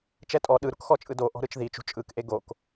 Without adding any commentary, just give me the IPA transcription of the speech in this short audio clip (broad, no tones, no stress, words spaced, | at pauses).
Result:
t͡ʃɛtʼɔ ɗɯ ɾukxɔt͡ʃʼɯdo ʔɔ̤ɾɯt͡ʃðit͡ʃṳ t͡ʃʼɯkʔe ɡok